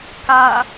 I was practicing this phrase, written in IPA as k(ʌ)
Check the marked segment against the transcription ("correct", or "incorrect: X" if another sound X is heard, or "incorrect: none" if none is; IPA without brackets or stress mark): incorrect: a